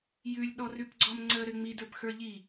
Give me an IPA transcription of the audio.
jʉlʲ ɗɔrʉpɡ͡ǀɔmŋ͡ǀə ɾɘŋ͡mi də˞pxə˞ʎi

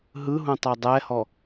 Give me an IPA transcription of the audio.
ɦɯɦũ tˤɛdˤɛhɔ

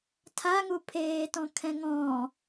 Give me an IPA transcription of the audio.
tʰaŋupʰeːtɔ̃ kʰɛ̃ŋɔ̃

